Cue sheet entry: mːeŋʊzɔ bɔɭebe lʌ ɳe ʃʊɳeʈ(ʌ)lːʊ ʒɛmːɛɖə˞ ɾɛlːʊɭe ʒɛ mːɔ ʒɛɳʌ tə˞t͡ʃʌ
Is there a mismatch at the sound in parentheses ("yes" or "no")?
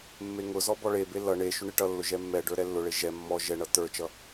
no